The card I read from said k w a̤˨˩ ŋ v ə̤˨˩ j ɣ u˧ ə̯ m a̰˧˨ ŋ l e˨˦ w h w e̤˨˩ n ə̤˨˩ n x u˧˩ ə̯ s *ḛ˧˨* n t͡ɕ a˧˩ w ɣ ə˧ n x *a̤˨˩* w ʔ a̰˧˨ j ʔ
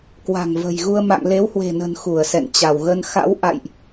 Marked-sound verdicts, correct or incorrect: incorrect, incorrect

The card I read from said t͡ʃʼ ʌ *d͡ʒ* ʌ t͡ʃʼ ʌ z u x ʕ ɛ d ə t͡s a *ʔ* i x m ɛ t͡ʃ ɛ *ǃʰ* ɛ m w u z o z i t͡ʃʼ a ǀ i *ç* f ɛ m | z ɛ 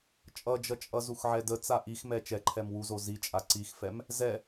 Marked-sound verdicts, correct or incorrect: correct, correct, correct, incorrect

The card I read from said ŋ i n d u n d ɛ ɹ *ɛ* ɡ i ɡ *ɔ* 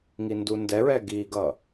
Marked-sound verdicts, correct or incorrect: correct, incorrect

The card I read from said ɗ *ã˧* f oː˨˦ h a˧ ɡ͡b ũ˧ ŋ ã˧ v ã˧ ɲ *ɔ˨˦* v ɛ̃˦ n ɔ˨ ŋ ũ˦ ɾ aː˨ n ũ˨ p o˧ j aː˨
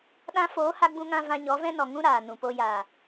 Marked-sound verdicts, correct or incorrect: correct, correct

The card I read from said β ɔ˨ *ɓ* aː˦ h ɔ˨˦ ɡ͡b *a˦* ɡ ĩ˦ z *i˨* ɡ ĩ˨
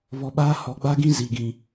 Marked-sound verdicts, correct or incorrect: correct, correct, correct

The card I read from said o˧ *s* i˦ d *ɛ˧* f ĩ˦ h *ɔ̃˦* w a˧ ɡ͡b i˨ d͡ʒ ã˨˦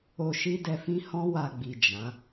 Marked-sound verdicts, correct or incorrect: incorrect, correct, correct

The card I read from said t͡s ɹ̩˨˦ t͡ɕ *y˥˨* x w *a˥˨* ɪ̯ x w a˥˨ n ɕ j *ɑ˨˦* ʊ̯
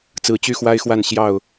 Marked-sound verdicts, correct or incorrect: correct, incorrect, incorrect

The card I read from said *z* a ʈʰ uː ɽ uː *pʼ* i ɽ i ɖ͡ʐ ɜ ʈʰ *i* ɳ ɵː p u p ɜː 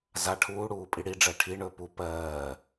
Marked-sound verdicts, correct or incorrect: correct, correct, correct

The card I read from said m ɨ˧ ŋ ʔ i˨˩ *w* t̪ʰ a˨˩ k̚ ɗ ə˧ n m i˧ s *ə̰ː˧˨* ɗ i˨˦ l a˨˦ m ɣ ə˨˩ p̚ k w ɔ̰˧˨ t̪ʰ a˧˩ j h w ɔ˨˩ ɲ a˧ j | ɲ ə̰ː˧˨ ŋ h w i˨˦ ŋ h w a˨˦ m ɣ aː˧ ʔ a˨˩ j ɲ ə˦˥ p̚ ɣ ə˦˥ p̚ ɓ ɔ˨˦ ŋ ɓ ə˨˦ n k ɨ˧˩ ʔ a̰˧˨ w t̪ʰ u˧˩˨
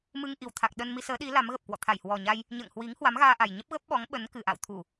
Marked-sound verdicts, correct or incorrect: correct, incorrect

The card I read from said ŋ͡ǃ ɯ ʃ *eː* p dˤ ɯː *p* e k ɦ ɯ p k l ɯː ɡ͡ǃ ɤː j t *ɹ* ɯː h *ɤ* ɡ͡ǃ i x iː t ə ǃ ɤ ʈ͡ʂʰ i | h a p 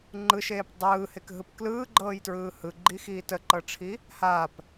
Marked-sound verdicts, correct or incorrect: correct, incorrect, correct, incorrect

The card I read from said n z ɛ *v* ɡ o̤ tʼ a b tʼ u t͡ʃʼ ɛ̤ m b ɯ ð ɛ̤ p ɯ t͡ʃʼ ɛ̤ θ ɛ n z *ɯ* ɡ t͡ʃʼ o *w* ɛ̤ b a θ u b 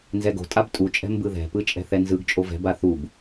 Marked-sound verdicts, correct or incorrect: incorrect, correct, incorrect

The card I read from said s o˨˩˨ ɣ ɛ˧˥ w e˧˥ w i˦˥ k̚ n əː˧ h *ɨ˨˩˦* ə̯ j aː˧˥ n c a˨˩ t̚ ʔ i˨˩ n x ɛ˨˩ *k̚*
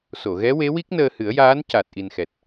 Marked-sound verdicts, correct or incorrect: correct, incorrect

